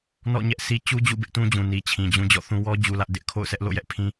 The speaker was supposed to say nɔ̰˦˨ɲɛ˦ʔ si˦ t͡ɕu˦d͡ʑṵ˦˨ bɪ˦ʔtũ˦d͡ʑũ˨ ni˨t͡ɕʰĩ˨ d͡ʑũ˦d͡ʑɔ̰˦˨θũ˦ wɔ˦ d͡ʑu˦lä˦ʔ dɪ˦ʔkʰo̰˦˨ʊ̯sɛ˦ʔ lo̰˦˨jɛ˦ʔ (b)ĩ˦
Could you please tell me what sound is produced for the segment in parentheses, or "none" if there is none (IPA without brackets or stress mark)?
pʰ